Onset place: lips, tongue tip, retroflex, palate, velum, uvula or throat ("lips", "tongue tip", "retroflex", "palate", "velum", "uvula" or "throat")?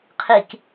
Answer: uvula